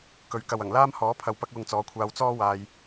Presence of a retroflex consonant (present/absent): absent